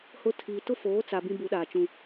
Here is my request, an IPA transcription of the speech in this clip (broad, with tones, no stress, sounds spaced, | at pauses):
h ʊ˦˨ tʰ iː˨ t ʊ˦ f oː˨˦ t͡s a˨ b ĩ˦ b u˨˦ ɗ aː˨ t͡ʃ ũ˦